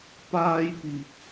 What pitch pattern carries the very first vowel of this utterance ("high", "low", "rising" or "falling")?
high